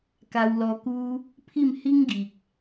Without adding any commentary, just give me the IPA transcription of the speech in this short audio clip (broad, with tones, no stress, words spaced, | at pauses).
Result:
ka˧wlɔ˧ku˦ | pʰi˥˧mhi˦ŋɡi˨k̚